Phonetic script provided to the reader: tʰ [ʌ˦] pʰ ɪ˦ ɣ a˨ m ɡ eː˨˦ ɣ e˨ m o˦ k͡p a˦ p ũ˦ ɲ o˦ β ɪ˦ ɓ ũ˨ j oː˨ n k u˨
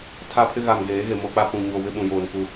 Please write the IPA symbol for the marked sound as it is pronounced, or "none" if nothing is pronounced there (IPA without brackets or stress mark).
a˦